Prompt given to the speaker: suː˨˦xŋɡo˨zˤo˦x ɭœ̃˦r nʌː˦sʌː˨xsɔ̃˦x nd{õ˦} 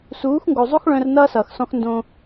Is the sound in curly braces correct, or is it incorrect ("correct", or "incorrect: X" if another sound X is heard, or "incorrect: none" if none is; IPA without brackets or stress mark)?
correct